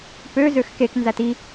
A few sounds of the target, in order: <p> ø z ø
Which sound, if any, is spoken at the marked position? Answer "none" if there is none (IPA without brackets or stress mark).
p